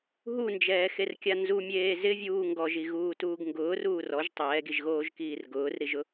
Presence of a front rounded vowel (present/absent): absent